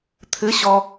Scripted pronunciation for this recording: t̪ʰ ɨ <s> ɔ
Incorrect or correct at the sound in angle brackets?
incorrect: ɕ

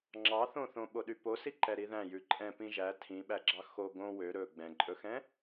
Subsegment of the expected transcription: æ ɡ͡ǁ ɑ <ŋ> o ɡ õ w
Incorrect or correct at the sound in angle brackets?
incorrect: x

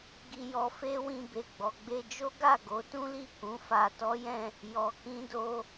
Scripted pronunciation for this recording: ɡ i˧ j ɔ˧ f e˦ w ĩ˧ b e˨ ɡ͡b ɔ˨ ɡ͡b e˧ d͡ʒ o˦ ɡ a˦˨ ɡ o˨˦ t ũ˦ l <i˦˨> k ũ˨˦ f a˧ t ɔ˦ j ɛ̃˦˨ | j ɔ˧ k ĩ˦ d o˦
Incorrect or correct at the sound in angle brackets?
correct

